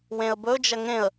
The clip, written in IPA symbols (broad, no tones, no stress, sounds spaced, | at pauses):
w ẽ ə̯ b ɵ d͡ʒ ɐ ŋ ẽ ə̯